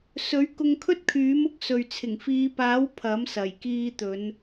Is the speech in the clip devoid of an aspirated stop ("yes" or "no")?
no